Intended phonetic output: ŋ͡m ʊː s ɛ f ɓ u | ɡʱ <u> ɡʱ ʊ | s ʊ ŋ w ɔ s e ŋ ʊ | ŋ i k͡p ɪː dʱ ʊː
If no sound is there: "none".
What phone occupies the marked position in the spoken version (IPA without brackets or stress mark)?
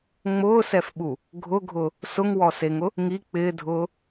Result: ʊ